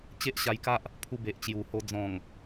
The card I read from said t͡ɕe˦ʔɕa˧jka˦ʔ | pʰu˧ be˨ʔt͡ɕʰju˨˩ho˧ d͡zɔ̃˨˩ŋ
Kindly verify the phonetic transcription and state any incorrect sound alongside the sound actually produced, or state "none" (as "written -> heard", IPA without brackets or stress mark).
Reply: t͡ɕʰ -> t͡ɕ